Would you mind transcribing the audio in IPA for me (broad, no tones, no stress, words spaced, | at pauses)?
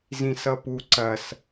zĩsʌpu ǀɐs